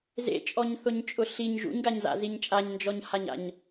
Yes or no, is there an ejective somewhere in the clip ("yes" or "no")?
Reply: yes